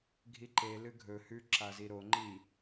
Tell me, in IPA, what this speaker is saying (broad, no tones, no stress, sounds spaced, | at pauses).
ɡʱ i ǃ e l ɨ ɡʱ ɵ h ʉ ǁ a z i ɾ o ŋ͡ǃ i